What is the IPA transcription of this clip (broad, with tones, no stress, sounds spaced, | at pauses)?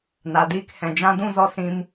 n a˨ d iː˦ k h ɛ̃˨ d͡ʒ ã˦ d ũ˦ z ɔ˧ s ĩ˧ m